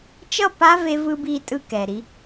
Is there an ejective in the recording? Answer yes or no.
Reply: yes